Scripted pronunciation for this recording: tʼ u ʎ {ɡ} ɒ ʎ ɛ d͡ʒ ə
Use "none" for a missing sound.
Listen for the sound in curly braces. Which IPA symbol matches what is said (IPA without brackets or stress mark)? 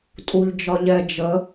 d͡ʒ